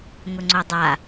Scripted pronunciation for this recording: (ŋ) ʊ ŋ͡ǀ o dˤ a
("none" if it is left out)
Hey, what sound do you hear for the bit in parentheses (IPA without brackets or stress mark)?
ŋ